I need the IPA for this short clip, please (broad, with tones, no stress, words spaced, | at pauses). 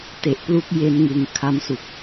te˨˩ʔplu˦˥k̚ je˧nŋɯ˨˩ŋ kʰa˧msu˨˩k̚